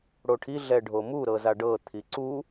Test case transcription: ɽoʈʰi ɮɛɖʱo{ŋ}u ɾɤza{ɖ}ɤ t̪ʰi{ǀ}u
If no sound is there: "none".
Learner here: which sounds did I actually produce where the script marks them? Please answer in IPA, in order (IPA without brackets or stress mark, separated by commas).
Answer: m, ɖ, ǀ